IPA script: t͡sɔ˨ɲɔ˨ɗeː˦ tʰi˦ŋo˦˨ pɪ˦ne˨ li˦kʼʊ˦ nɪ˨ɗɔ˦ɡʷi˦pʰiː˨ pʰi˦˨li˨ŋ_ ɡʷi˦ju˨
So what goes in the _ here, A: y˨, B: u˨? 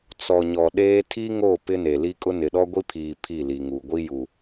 B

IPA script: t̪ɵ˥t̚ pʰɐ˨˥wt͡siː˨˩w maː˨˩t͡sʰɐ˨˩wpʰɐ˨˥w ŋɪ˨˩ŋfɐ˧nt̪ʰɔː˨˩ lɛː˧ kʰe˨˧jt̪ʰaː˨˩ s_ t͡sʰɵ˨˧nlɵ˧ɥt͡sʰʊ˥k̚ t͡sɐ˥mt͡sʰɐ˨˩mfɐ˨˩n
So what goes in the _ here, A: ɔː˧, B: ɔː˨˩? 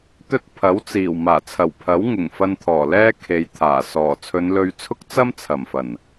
B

